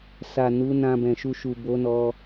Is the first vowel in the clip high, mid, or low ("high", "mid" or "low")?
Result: low